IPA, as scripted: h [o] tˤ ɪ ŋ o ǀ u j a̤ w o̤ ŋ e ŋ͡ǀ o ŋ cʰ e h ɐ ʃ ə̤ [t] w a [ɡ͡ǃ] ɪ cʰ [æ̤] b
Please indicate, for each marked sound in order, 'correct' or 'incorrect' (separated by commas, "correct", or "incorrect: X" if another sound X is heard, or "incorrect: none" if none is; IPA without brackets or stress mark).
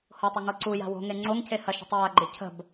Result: correct, incorrect: tˤ, correct, incorrect: ə̤